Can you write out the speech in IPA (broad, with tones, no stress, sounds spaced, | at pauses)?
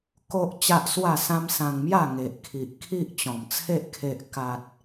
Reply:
k o˦ ʔ t͡ɕ a˦ ʔ s w a˥˧ s ã˦ m s ã˧ ŋ m j a˥˧ ŋ e˨ ʔ kʰ i˨ ʔ kʰ i˦ ʔ t͡ɕ ɔ̃˨˩ m t͡sʰ e˦ ʔ kʰ e˦ ʔ k a˨ t̚